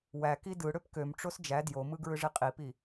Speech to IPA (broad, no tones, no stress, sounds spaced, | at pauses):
w æ k i d ɯ ɽ ø p k ø m ʈ͡ʂ o s d͡ʒ æ d j o m ɯ ɡ ɹ ɯ ʐ i qʼ i p i